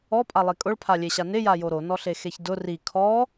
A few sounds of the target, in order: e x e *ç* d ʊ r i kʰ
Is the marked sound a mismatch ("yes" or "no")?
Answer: no